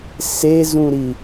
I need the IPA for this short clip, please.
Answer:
s e z ũ ɾ i

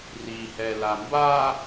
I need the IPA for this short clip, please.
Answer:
r i h ɛ l a m b a

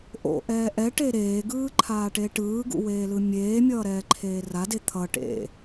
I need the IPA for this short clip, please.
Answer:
ʔ o̰ ʔ ɛː ʔ ɛ ʈ e ɾ eː ɡ ɯː ǃʰ aː ʈ e ʈ ɯː ɡ ṵ w eː l ɯ mʲ eː mʲ ʌː ɾ ɛː ǃʰ eː r a d e t̪ʰ ʌ ʈ ḛ

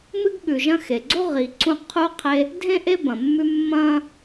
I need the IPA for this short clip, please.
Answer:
m ɨ˥ ɡ ɠ ʉ˩ ʒ ɐ̃˦ x e˩ ɡ͡ǀ o˥ ʁ i˩ ǀ ũ˦ qʰ u˦ qʰ e˦ | dʱ ẽ˥ ʔ e˥ b ɐ̃˩ mː ʉ˦ mː ɐ̃˥

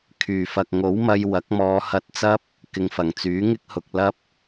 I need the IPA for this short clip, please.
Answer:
kʰ yː˨˩ f ɐ˨ k̚ ŋ o˨˥ w m ɐ˧ j w ɐ˨˥ k̚ m ɔː˨˧ h ɐ˧ t̚ t͡s ɐ˥ p̚ | k ɪ˨˧ ŋ f ɐ˨˩ ŋ t͡s yː˨˥ ŋ ɪ˥ k̚ h ʊ˨ k̚ l ɐ˥ p̚

